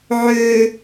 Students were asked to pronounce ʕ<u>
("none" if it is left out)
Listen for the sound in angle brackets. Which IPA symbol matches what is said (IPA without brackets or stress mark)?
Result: ø